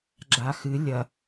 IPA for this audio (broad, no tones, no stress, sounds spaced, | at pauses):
ɡ͡ǁ a x ɨ lʲ ɐ